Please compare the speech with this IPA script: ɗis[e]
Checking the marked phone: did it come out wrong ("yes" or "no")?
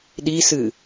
yes